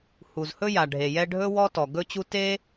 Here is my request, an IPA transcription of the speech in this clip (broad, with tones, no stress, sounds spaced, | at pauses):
h u˩ z h ɵ˥ j a˩ ɖʱ e˩ j ɛ˥ ɖʱ ɵ˥ w ɔ˥ t ɔ˩ ɡ ɵ˥ t͡ɕ u˥ t e˥